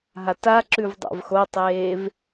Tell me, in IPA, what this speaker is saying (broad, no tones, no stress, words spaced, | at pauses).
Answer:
ɦataǁʉv dˤa̰vxotˤeːv